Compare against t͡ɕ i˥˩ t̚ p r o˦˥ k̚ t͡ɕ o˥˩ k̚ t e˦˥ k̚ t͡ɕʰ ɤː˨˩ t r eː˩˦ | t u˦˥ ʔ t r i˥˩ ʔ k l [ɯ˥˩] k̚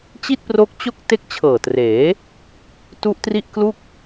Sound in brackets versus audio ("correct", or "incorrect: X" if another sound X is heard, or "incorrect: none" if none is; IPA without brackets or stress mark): incorrect: u˥˩